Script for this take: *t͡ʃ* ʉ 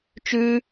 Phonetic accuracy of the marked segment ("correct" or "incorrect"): correct